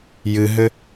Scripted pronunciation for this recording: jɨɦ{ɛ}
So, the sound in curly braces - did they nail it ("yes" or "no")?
no